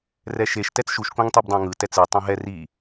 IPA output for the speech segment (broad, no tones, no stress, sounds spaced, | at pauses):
r ɛ ʃ e ʃ t ɛ t͡s ʃ u ʃ k õ ŋ tˤ i b dˤ ã ŋ ɯ t ɛ t͡s ɯ tˤ õ ɦ ɛ r i